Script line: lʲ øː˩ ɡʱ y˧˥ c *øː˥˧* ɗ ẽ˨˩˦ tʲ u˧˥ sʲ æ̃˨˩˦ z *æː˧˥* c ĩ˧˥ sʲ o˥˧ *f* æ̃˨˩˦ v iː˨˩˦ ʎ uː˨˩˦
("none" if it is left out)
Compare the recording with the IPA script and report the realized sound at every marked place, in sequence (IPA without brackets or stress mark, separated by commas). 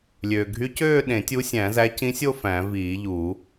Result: øː˥˧, æ˧˥, f